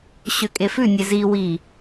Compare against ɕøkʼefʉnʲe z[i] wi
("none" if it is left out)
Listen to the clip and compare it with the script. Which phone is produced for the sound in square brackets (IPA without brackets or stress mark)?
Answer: i